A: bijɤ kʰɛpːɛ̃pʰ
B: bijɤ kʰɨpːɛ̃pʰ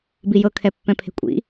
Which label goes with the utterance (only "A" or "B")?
A